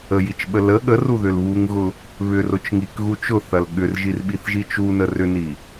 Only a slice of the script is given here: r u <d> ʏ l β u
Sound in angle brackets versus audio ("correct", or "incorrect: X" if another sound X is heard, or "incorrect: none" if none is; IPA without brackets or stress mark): incorrect: ð